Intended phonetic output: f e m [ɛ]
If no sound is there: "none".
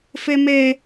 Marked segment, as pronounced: e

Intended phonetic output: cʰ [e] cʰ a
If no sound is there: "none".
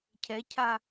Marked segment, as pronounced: ɛ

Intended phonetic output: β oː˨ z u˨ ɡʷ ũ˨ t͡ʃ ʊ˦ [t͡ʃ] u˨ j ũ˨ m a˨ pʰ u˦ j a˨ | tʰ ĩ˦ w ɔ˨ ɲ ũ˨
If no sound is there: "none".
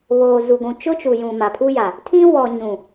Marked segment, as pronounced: t͡ʃ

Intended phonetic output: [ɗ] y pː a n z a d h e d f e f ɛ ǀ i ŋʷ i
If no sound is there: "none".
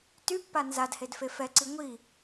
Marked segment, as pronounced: t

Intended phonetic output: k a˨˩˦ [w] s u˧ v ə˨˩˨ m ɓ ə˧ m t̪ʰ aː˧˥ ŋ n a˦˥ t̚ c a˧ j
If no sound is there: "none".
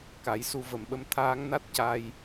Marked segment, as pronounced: j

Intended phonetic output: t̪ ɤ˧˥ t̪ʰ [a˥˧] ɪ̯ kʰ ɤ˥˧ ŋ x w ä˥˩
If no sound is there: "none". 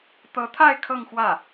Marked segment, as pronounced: a˥˧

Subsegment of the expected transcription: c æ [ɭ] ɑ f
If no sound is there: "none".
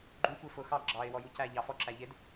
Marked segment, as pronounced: ʎ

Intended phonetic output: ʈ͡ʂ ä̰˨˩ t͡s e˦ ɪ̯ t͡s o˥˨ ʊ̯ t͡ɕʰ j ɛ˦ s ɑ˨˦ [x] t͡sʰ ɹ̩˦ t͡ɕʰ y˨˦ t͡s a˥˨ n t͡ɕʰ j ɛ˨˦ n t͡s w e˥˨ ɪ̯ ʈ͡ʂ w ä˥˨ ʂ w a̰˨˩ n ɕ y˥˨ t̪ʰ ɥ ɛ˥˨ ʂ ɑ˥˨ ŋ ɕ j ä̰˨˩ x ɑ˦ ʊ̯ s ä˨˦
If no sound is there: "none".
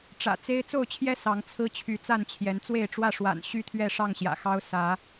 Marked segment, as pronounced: ŋ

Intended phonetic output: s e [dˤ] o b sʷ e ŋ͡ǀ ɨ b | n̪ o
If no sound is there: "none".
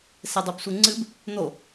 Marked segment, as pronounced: dˤ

